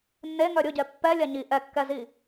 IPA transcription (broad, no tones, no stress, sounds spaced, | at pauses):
nː e ŋ œ ɾʲ ʊ ɟ ɛ pː ɛ lʲ a ɲ i ʔ ɛ kː ɛ z i